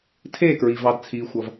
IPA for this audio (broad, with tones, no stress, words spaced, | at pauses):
tʰeː˥˨kɹi˨vɑ˨d t͡sʰiː˨xʷʌ˨v